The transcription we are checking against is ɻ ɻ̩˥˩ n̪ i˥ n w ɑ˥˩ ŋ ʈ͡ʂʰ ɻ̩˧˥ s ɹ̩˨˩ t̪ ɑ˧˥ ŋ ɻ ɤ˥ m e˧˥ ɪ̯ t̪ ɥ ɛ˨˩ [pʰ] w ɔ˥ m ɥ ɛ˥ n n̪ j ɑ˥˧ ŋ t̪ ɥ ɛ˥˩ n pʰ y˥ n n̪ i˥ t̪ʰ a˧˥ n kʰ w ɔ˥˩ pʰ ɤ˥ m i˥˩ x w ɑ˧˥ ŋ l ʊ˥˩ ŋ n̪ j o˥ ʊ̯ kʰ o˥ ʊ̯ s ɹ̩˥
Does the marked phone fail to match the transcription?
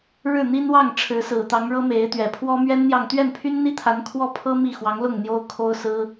no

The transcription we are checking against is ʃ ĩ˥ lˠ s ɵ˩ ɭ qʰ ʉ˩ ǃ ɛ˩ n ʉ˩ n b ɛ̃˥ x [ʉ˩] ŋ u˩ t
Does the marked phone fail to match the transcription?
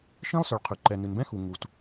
yes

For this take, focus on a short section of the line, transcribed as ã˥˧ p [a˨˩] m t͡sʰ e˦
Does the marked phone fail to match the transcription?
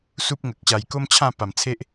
no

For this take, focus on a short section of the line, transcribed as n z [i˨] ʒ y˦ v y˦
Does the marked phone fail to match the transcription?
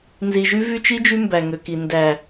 no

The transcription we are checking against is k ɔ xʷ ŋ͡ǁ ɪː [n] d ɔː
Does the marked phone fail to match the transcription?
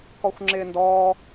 no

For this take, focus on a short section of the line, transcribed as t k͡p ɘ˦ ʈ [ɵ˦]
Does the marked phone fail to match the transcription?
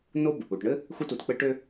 yes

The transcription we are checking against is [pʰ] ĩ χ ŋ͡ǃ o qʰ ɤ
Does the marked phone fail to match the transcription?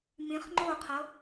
yes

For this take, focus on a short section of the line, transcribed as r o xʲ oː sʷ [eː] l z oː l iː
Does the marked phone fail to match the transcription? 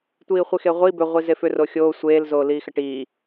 no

